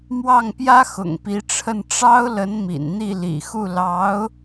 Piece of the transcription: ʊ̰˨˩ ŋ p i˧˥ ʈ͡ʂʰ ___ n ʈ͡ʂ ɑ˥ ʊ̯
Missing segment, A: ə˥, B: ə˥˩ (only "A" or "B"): B